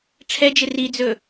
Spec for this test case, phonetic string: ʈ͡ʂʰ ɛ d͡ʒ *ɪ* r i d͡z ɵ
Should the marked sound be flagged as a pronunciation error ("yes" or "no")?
no